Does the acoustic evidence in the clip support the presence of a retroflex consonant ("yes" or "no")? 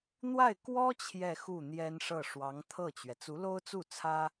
yes